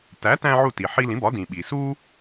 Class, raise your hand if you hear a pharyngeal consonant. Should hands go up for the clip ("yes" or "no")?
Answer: yes